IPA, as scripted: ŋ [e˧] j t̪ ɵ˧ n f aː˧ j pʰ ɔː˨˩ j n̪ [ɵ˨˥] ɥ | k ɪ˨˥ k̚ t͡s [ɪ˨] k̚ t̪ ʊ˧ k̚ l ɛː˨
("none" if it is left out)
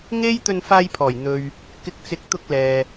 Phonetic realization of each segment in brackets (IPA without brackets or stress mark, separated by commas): e˥, ɵ˧, ɪ˨